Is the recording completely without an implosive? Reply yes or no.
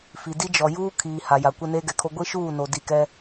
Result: yes